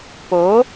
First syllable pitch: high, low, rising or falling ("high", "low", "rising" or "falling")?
rising